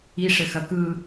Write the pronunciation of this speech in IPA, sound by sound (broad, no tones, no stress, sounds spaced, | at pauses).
i ʂ ɘ x ɐ k ɯ